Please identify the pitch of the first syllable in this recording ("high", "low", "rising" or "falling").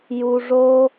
low